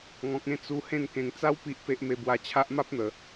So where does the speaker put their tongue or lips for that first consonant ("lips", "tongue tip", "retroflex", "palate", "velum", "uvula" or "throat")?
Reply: velum